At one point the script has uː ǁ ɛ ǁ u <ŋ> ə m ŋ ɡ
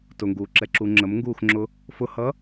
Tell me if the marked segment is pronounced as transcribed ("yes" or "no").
no